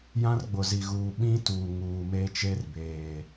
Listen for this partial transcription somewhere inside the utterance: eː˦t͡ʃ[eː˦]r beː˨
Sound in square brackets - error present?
yes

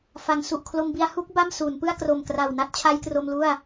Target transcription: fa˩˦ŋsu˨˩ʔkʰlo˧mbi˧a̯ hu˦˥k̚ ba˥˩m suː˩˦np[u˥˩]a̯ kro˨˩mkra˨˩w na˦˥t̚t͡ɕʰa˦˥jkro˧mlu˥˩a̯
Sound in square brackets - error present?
yes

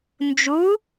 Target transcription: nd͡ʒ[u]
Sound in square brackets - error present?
no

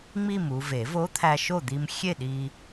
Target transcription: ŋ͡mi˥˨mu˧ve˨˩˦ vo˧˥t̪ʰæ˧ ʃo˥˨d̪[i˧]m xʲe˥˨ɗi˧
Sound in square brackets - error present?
no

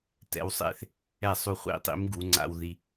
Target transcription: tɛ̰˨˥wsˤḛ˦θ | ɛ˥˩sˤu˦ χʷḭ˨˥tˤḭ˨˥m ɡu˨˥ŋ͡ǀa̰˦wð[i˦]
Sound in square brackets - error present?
no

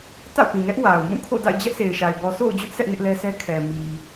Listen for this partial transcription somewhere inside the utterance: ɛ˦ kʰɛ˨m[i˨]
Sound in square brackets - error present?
no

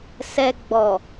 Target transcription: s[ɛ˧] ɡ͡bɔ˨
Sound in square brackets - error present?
no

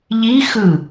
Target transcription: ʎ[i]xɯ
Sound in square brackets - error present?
no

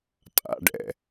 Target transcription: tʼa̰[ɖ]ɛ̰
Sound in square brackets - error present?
no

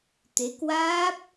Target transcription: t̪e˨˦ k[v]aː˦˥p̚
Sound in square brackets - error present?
yes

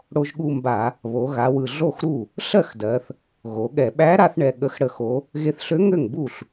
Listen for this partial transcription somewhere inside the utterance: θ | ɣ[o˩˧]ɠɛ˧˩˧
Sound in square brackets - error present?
no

